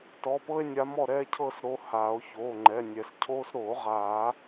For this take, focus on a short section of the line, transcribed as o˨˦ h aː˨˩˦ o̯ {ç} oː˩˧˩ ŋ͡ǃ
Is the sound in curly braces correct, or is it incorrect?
correct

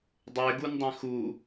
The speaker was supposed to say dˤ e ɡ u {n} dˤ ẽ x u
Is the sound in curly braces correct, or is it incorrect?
correct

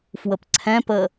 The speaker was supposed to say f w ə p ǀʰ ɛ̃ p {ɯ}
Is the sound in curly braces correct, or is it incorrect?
incorrect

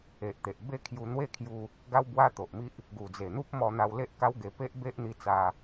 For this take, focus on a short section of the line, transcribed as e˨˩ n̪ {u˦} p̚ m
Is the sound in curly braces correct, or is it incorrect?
correct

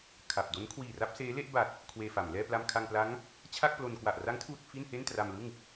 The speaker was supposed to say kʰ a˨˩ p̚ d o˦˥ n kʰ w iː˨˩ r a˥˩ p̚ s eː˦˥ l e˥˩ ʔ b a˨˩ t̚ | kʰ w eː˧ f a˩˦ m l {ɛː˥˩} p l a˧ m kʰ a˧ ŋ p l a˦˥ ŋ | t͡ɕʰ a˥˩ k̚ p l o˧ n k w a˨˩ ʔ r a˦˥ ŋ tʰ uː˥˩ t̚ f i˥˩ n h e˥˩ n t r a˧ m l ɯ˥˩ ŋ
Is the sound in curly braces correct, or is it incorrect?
correct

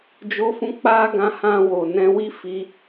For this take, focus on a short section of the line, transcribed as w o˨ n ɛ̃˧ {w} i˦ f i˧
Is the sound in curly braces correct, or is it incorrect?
correct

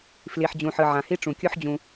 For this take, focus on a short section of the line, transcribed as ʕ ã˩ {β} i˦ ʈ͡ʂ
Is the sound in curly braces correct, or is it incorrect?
incorrect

